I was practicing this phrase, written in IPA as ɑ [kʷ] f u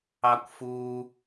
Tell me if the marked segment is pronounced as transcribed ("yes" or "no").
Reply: yes